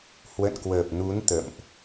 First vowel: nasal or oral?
oral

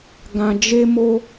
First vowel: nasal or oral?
nasal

